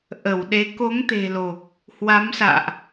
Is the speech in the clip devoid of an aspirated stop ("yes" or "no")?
yes